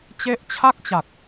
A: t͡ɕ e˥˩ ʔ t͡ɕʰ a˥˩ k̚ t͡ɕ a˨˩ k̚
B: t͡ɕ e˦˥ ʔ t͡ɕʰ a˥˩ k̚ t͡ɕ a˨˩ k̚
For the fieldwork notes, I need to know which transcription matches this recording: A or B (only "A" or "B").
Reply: B